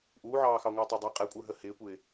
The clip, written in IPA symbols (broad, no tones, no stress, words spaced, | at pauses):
ʔuːʕɑːxɑŋʷə˞ tˤɑdˤɛ qʼɛkʷʼə˞ɦə hɪːkʷɪː